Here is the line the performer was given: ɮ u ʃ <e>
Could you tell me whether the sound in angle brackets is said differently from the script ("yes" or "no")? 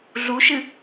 yes